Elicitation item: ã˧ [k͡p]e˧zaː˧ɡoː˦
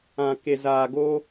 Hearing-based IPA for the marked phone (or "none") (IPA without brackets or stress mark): k